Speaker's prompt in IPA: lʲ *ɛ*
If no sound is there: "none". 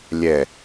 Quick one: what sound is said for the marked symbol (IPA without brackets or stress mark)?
ɛ